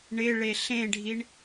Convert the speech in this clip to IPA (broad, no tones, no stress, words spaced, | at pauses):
ɳɪ ɭeɬẽɖʱiɳ